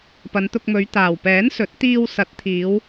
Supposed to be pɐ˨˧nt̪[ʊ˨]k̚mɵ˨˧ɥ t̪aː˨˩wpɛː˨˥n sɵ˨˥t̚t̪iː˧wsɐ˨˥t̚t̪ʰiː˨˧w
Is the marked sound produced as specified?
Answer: no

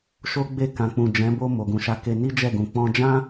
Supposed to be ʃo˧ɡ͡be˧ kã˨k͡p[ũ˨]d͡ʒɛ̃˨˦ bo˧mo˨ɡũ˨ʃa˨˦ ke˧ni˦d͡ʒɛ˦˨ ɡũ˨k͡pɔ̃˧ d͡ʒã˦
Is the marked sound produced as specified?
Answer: yes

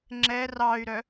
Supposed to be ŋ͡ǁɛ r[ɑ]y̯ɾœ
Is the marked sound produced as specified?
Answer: yes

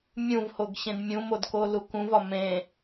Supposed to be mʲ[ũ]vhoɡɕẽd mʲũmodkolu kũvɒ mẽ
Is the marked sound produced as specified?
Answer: yes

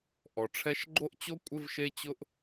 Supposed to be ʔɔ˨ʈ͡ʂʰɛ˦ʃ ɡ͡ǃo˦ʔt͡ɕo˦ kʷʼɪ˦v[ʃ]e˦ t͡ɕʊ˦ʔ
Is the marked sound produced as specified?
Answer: yes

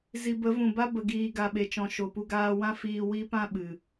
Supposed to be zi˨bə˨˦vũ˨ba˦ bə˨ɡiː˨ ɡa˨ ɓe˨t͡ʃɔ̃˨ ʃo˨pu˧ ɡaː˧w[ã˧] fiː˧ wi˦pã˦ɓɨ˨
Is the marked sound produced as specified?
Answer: no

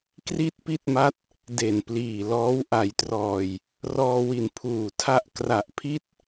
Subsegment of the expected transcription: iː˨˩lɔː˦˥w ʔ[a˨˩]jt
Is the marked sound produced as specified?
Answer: no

